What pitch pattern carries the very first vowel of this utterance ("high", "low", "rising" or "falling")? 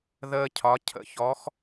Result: high